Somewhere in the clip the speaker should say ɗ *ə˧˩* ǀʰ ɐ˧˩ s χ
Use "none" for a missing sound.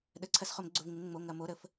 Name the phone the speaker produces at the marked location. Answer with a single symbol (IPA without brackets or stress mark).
ə˩˧˩